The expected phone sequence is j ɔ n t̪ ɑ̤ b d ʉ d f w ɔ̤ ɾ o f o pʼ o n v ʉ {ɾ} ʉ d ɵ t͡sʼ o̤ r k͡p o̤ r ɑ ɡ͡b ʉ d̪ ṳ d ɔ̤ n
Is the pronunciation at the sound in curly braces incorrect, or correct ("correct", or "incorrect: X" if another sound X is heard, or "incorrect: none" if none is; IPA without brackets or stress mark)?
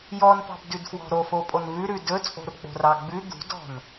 correct